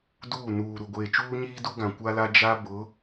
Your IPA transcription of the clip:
d uː˦˨ n uː˨ ɾ u˨ ɡʷ eː˨ t͡ʃ uː˦ ɲ iː˦ d u˦ ɡ ã˨ kʷ a˦ l a˦ d͡ʒ a˦ b ʊ˨˦

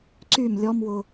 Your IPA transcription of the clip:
ǀ y m lʲ ɔ m w ʊ

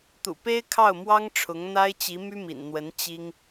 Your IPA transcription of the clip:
t̪ ṵ˨˩ p e˥ ɪ̯ kʰ ɑ˥˩ ʊ̯ m w ɑ˥ ŋ ʈ͡ʂʰ ʊ˧˥ ŋ n̪ a˥ ɪ̯ t͡ɕ i˧˥ m y˥ m ḭ˨˩ n n̪ w ə˧˥ n t͡ɕ i˥ ŋ

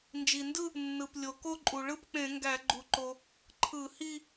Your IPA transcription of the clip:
n d͡ʒ i˩ n d ɯ˥˧ | nː ɯ˩ p lʲ o˩ k o˥˧ ǃʼ u˩ ɭ ɯ˥˧ p k͡p ẽ˧˩˧ ŋ ɡ æ˧˩˧ ɡ͡ǃ u˩ ǃ o˩ | ǃʰ ɯ˧˩˧ h i˥˧

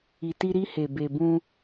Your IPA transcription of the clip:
i˨ t i˧ ɾ i˧ h e˨ b e˨ b ũ˧

